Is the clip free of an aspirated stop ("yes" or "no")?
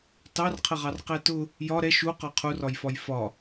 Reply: no